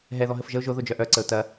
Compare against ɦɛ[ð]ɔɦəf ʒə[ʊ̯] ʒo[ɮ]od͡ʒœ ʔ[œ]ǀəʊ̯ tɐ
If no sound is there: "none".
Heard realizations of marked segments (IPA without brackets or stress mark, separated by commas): ð, ʊ̯, ð, œ